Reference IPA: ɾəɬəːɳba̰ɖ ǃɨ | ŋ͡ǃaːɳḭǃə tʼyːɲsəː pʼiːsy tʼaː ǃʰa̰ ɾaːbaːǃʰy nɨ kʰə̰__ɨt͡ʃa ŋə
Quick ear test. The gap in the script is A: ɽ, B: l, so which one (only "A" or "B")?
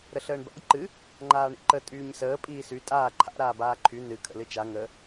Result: B